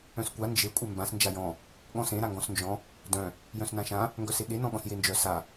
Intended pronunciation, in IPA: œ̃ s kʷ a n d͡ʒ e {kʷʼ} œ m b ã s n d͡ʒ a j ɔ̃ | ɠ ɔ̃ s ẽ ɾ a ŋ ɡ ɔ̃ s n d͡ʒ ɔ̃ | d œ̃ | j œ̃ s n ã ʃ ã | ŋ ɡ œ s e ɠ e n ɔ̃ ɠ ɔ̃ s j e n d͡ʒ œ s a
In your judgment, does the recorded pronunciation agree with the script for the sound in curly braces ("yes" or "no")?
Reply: yes